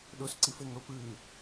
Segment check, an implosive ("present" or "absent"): present